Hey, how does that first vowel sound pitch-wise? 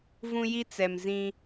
high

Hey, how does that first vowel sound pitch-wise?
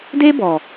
high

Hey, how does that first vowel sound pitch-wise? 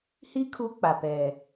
high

